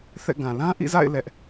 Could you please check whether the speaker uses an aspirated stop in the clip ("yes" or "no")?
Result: no